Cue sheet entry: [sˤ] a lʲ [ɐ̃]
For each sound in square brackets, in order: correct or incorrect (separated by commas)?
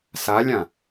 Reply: incorrect, incorrect